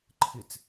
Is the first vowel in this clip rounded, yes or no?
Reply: no